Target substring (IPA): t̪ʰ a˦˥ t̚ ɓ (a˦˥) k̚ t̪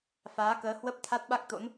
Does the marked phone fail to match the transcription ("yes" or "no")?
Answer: no